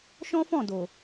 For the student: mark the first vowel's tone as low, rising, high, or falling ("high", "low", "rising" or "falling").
high